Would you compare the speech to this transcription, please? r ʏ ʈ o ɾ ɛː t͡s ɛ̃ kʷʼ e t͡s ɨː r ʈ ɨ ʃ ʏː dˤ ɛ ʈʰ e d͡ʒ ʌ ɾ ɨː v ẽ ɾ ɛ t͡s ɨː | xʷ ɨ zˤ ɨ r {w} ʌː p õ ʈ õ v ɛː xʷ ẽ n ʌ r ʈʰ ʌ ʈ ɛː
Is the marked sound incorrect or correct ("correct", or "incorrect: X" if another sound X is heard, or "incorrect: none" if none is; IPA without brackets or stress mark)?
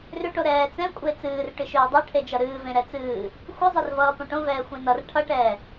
incorrect: v